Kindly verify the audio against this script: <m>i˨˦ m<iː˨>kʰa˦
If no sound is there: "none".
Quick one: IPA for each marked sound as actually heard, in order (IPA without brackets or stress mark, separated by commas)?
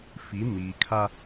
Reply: f, iː˨